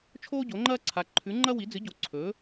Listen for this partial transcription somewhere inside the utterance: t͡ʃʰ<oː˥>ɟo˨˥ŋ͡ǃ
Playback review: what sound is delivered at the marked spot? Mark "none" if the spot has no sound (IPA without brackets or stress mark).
oː˥